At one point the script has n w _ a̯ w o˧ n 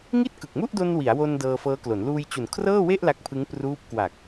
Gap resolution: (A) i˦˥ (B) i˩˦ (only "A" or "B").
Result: B